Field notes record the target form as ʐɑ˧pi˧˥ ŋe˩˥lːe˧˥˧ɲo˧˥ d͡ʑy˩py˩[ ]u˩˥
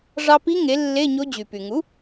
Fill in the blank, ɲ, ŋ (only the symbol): ŋ